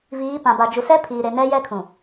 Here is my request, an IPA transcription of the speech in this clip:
viː˨˦pã˨ ba˨d͡ʒu˨sɛ˦ pʰiː˨ɾe˨ nɛ˦jɛ˦kʰũ˨

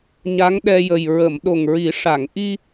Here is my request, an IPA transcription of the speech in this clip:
ɲa˧˥ŋɗɛ˧jə˨˩j ɹə˨˩˨mɗo˨˩ŋɹi˨˩˦ ʂa˨˩˨ŋʔi˧

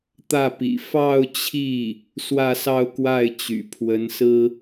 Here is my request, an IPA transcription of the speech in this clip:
t̪ä˥˩pḭ˨˩ fɑ˥˧ʊ̯t͡ɕʰi˥˩ | swä˥˧sɑ˥˧ʊ̯kwa˥˩ɪ̯ t͡ɕy̰˨˩ pʰwə˧˥nsɹ̩˥

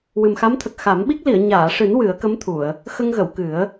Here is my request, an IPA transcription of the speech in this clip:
wɨ˨˩mxa˧˥mt̪ʰə˨˩k̚ xa˨˩˦mɓi˦˥k̚ li˨˩˨ə̯ɲaː˨˩˨ʂɨ˨˩˦n wɨ˨˩˦ə̯kə˧˥mt̪ʰu˨˩˨ə̯ | xə˧ŋɣə˨˩˨w kɨ˨˩˦ə̯

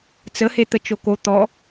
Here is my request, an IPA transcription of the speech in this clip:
t͡səhe t̪ət͡ʃoko t̪ɔ

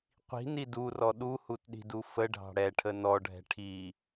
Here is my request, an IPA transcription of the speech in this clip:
qʷi̤ni durɔ ɗuhutɗi̤du fəɖʱɑ̤ ɽɛʈʰə nɔɖʱɛ̤ ʈʰi

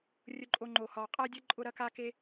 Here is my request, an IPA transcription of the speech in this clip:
rʲʊ˨ǃʼo˨ŋ͡ǃo˩ hɒ˩qʼa˥dʲə˥ǃʼʊ˦ ɾɐ˦ka˦ke˦

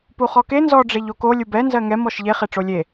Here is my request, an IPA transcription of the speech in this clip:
puχɔke nzɔ ɖ͡ʐeʎoko lʲubɛ nzɜŋɛm ɔʃʎe χeʈ͡ʂolʲe

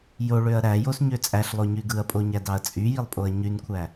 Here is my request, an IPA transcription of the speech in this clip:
joɭøɐ̯ ɾæjosɲø t͡sʼæɬlˠoɲy ɡɯɐ̯pʼoɲædɑɐ̯ t͡sʼyjilˠpʼoɐ̯ ɲynkʷʰæ

